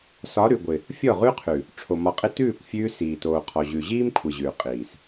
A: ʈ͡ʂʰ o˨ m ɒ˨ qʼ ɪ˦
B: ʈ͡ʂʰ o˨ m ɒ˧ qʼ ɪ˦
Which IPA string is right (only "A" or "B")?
B